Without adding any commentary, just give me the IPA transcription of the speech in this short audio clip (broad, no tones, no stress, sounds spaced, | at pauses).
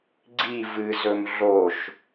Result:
ɡ͡ǀ i v ɨ z ɵ m ɮ o ʃ